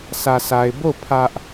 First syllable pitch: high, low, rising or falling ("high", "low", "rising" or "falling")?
low